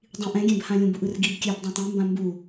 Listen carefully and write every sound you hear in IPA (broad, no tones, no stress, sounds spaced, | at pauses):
dˤ ĩ ʔ ɛ̃ ɡʲ ɛ̃ b h ã lʲ ũ b u ʔ ɯ r ɡ i b kʲ ɛ b dˤ ã tˤ ẽ m b ã m b u